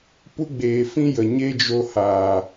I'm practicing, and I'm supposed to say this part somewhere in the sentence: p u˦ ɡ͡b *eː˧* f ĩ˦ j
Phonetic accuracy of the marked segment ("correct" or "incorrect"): incorrect